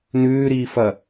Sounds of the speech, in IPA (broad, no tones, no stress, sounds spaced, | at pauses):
n ʉː ɾ iː f ɐ